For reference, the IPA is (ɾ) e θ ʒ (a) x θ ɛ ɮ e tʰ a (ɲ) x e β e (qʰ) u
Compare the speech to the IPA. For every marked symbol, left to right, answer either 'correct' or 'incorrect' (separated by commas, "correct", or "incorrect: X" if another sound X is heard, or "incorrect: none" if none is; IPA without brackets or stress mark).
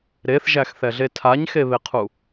correct, incorrect: æ, correct, correct